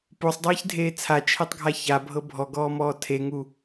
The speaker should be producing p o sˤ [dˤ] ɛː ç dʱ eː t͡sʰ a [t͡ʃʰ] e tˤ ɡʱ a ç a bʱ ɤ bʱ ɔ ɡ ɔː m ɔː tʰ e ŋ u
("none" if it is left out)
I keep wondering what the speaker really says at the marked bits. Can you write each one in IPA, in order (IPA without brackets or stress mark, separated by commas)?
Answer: dˤ, t͡ʃʰ